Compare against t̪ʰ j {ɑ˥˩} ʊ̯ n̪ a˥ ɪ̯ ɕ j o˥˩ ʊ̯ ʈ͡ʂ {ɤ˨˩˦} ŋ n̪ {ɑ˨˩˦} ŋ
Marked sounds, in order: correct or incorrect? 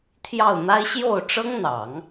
correct, incorrect: ɤ˥, correct

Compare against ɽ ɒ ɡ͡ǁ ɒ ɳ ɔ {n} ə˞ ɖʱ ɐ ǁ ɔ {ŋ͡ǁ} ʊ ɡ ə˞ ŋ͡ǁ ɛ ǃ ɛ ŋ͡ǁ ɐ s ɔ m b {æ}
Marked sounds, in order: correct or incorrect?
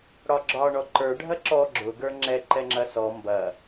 incorrect: ǃ, incorrect: ɡ͡ǁ, incorrect: ɐ

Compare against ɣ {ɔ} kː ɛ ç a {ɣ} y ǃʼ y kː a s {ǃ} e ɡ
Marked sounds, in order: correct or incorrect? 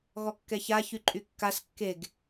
correct, incorrect: ç, incorrect: kː

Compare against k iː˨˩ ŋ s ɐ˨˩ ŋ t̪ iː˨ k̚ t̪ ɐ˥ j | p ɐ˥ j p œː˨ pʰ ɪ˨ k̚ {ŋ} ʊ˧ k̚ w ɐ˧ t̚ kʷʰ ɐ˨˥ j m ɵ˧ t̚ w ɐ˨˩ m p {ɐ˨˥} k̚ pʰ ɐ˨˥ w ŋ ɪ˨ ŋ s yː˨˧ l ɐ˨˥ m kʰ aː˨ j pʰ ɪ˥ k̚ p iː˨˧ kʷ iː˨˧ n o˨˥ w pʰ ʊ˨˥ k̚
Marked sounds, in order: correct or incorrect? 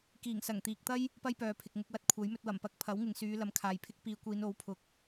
correct, incorrect: ɐ˧

